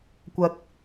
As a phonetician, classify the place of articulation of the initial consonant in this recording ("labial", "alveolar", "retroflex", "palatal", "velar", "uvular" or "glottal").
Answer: velar